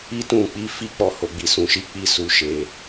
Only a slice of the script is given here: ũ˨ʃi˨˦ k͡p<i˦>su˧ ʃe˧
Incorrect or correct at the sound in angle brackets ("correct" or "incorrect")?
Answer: correct